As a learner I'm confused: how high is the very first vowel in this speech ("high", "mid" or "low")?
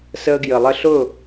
mid